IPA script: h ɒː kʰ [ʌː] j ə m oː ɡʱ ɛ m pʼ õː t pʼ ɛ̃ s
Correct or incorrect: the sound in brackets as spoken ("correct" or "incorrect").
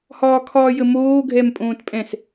incorrect